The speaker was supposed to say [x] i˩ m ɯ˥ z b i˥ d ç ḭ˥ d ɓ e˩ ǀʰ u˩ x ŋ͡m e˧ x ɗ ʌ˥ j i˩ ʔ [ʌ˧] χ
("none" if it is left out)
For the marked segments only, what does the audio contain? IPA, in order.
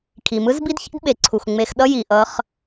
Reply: kʰ, ʌ˧

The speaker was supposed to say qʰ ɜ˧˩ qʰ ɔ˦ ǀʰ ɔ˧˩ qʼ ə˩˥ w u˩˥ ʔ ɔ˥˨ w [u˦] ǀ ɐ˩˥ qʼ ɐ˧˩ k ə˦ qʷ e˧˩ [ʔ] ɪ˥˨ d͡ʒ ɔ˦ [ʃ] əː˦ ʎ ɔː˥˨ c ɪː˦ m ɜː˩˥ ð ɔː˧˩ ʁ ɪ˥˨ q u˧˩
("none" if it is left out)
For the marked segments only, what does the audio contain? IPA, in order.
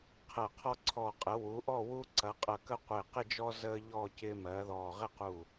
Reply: u˦, q, z

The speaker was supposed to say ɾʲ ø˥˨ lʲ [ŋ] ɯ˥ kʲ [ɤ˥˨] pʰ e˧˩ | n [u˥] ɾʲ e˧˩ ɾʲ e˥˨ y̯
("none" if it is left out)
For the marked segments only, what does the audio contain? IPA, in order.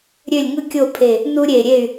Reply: ŋ, o˥˨, u˥

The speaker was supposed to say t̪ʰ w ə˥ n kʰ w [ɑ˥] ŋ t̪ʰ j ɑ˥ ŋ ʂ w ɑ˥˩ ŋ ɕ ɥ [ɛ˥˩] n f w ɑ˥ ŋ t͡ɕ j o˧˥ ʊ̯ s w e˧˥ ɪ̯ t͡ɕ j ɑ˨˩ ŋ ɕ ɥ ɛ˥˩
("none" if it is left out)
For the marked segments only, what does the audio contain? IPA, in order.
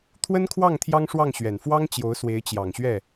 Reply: ɑ˥˩, ɛ˨˩

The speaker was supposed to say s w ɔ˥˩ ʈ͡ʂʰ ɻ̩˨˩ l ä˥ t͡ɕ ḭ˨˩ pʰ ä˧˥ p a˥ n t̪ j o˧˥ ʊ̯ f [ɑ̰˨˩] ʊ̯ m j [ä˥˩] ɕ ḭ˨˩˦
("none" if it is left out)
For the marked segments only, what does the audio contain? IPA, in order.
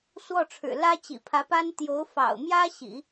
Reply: ɑ̰˨˩, ä˥

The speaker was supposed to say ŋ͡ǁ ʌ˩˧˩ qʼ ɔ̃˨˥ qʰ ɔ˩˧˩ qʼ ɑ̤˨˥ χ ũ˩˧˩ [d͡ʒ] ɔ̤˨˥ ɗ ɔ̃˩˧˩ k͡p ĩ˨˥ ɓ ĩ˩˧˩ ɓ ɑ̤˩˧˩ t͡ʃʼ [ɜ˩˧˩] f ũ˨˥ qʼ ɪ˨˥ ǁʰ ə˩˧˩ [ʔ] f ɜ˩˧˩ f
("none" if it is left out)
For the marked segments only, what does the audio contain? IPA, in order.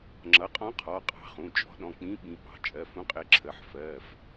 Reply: t͡ʃʼ, ɜ˩˧˩, ħ

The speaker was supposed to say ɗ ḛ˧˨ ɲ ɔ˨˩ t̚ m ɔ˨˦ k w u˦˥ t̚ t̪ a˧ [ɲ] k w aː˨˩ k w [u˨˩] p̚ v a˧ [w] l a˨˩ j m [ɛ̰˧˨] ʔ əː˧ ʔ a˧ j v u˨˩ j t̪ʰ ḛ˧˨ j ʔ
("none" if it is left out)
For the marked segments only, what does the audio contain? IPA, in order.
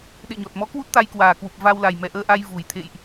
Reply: j, u˨˩, w, ɛ˨˩

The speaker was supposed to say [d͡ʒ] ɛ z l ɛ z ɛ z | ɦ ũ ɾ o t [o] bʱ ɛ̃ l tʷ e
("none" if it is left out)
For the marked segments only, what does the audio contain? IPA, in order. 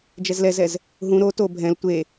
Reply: d͡ʒ, o

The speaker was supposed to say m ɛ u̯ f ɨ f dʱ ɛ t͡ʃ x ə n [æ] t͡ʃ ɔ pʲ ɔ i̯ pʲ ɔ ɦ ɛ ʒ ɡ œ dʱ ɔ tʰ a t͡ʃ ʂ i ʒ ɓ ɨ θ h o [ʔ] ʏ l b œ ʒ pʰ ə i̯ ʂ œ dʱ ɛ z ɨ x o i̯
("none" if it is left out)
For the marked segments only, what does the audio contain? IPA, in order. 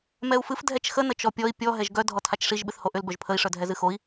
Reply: ə, ʔ

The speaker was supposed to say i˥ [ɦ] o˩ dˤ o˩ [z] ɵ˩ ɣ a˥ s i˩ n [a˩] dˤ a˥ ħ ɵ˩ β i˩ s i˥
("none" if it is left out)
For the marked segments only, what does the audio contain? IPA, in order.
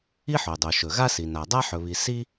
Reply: ħ, ʃ, a˩

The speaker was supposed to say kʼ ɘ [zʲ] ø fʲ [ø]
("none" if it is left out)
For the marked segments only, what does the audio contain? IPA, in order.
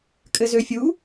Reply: z, u

